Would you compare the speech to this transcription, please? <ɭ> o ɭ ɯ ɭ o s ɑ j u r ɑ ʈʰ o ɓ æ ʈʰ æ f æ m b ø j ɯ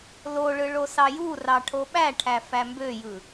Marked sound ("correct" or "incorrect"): incorrect